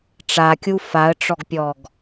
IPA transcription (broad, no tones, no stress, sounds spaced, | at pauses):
ʈ͡ʂ a kʲ u f a ə̯ ʈ͡ʂ ɔ ɡ pʲ ɔ ɡ